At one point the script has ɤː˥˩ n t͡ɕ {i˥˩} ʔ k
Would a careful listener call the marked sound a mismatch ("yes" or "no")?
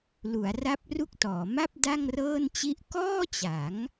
no